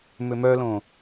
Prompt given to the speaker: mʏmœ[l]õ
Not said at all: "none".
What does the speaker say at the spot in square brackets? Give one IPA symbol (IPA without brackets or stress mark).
l